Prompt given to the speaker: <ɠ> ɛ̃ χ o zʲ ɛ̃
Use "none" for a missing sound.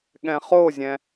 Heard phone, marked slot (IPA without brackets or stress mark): ɠ